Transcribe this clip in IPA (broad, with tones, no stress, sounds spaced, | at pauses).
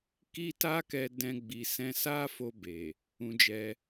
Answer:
k i˦ t a˦ k ɛ˧ d ɛ̃˧ ɡ͡b i˨ s ɛ̃˧ s a˦ f o˧ b e˨ | ũ˧ d͡ʒ ɛ˧